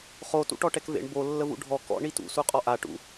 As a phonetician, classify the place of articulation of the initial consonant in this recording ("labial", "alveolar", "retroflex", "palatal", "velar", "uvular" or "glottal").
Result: uvular